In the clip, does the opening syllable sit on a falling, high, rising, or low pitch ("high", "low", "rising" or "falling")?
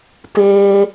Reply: low